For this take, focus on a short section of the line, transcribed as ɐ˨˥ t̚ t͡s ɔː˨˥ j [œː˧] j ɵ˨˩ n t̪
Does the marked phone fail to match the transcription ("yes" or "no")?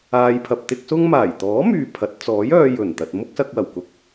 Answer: no